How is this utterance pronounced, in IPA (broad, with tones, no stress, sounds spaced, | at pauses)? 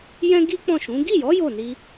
j ɛ̃˦ ɡ i˦ k͡p ɔ̃˦˨ ʃ ũ˨˦ ɡ i˦˨ j ɔ˨˦ j o˦˨ n i˧